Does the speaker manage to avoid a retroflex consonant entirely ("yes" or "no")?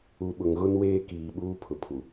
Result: yes